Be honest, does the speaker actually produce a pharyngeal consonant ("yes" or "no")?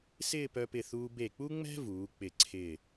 no